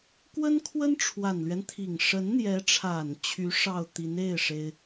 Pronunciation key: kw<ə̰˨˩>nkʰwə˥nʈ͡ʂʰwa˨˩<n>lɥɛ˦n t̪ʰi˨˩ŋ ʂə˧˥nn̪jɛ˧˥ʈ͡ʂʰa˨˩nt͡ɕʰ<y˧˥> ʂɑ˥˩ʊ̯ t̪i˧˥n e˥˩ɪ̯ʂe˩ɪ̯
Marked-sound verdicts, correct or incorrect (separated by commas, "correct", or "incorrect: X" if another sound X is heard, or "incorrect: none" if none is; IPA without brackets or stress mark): incorrect: ə˥, correct, correct